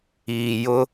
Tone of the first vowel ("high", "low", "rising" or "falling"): low